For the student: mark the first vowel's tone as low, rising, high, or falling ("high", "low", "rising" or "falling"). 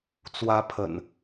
rising